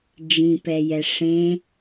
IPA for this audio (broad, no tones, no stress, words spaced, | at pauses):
d͡ʒĩpɛ jɛʂẽ